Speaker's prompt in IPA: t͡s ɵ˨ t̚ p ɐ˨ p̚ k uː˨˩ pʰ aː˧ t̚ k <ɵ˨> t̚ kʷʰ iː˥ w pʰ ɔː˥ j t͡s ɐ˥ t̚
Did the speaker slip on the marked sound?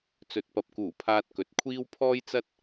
no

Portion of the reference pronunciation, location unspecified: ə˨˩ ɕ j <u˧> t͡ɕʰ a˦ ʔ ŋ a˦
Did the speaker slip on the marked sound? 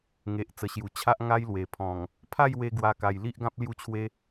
yes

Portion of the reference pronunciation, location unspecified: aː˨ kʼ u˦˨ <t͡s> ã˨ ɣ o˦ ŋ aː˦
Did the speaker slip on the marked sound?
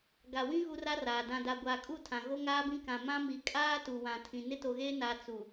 yes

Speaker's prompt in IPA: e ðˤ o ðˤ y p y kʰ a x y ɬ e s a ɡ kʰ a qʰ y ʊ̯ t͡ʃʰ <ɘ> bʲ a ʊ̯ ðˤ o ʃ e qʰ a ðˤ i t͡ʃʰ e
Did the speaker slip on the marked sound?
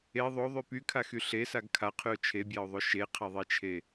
yes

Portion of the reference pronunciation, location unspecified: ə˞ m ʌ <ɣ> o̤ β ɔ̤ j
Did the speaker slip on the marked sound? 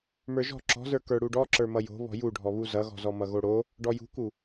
yes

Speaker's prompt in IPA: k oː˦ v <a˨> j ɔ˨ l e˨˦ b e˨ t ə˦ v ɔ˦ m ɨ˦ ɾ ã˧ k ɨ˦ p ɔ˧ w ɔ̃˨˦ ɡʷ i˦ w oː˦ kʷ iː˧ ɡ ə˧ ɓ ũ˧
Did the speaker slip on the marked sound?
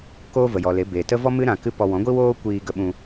yes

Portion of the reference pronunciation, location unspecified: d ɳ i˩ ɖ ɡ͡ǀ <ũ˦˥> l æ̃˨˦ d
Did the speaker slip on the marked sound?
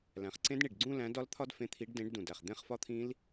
yes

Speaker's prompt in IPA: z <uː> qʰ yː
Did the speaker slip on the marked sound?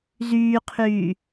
yes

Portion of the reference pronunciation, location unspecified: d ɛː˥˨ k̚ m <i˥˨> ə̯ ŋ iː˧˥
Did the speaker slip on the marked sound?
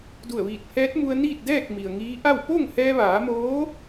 yes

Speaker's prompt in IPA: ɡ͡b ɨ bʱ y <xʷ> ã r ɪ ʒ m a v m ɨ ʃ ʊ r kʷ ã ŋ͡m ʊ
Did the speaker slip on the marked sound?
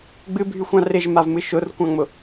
no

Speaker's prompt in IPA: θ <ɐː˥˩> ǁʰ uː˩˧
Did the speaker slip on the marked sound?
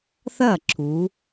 no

